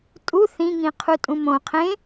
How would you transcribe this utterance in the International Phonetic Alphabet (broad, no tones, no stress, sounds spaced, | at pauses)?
tʼ u θ ĩ ŋ ĩ qʰ u tʼ ũ m õ qʰ ẽ